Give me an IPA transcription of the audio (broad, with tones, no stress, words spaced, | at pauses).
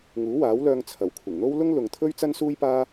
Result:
ŋuː˨˥waː˨˥wlœː˧ŋ t͡sʰɐ˨˩wkʷʰɪ˨˩ŋn̪o˥w lʊ˥ŋlʊ˨ŋt̪ʰɵ˥ɥ t͡sɐ˥nsuː˥jpaː˥